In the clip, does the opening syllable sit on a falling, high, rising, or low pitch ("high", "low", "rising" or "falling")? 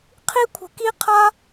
high